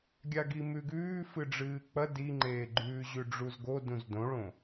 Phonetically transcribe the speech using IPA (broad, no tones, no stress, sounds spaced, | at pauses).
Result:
ɡʲ a ɡ i m ʉ ɡ ʉː f ɨ ɖ͡ʐ ɨː k͡p ɐ d i ŋ͡ǃ eː ɡ͡ǃ ʉː ʑ ʉ ɖ͡ʐ u z ɡ o d ũ z d õ ɭ õ